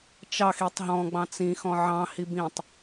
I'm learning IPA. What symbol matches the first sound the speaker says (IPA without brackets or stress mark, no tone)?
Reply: t͡ʃ